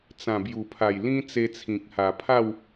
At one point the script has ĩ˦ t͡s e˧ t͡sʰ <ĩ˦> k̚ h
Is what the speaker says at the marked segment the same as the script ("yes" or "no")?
no